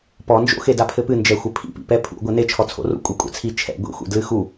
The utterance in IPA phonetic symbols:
p ɔ n d͡ʒ o̰ x e d a pʰ ɘ p ɨ n d͡ʒ ɛ xʷ ɘ pʰ ḭ p ḭ p ɛ pʰ ṵ ɡʷ ɛ n e t͡ʃʰ ɔ t͡sʰ o̰ r ṵ kʷʼ e kʷʼ ɛ̰ t͡sʰ i t͡ʃʰ ɛ̰ ɡʷ ḭ xʷ ḛ d l ɨ x u

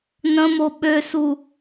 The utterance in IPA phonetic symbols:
n ə̃ m o ɓ ø s u

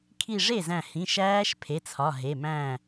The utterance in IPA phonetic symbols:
kʰ i˧˩ ʐ e˥˩ z æ̃˧˩ h ĩ˩˧˩ ʃ æː˦˥ ʃ pʰ e˩˧˩ t͡sʰ ɒ˩˧˩ ɦ e˩˧˩ m æ̃˥˩

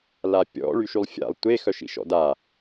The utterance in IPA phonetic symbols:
l a pʲ ɔ̰ ɭ y ʃ y lˠ fʲ a̰ lˠ tʷ e x œ ʃ ḭ ʃ ɔ̰ d a

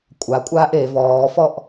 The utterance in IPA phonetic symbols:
kʷʼ a kʷʼ aː ʔ e v ɔː f ɔ ʔ

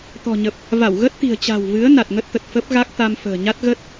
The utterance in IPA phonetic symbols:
t̪ ɔ̤˨˩ ɲ ə˨˩ p̚ | v a˧˩ w ɣ ə˦˥ t̚ t̪ i̤˨˩ ə̯ t͡ɕ a̤˨˩ w v ɨ˨˦ ə̯ n a˨˩ t̚ ŋ ə˦˥ t̚ t̪ ə˨˩ t̚ f ə˦˥ p̚ ɣ a˦˥ k̚ t̪ a˧ m f ə̤ː˨˩ ɲ a˦˥ t̚ ɣ ə˦˥ t̚

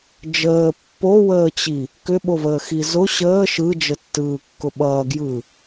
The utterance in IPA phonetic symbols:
d͡ʒ əː pː o w əː t͡ɕ i | k ʏ ɓ o v əː x i z ʊ ɕ əː ʃ ɯ d͡ʒ ə tː ɯː kː ʊ ɓ ʌː ɡ j ɯ

